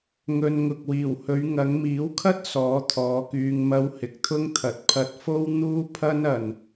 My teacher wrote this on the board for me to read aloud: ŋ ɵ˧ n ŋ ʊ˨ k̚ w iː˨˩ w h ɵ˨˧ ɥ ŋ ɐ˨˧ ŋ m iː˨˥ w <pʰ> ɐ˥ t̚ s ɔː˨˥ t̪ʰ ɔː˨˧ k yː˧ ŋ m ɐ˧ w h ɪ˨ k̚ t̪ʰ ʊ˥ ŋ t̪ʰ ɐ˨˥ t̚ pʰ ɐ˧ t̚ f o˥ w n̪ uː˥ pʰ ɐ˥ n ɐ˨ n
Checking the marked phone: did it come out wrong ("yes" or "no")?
yes